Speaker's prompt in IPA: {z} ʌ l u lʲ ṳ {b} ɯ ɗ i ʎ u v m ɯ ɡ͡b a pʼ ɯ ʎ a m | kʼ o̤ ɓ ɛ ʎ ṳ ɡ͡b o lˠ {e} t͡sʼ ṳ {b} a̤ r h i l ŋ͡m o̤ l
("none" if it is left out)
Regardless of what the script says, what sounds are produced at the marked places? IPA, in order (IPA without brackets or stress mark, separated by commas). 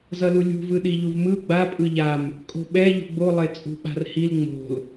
z, v, e, ɓ